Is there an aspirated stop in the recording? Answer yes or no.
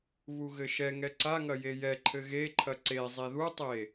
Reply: yes